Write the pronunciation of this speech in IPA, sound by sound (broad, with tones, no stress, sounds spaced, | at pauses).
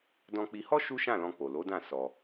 d ɔ̃˧ k͡p i˧ h ɔ˦ ʃ u˦ ʃ ã˦˨ l ɔ̃˧ k͡p o˨ l o˨˦ d ã˦˨ s ɔ˧